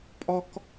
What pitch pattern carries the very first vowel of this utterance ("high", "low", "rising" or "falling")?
high